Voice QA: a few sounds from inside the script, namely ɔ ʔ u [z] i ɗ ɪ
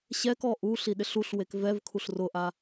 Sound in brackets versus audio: incorrect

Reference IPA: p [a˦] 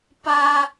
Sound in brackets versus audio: correct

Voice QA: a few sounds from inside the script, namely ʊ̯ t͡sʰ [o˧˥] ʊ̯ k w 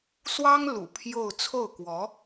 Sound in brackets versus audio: incorrect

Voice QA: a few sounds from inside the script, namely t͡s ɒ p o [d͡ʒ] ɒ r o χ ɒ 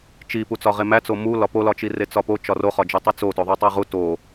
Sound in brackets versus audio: incorrect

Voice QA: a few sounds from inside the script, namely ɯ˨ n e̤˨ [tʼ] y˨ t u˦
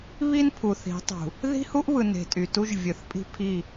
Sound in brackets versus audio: correct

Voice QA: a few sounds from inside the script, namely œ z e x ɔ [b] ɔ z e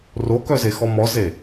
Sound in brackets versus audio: incorrect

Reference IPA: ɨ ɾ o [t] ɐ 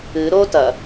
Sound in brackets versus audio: correct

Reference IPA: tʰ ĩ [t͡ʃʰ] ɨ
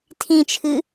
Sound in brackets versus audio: correct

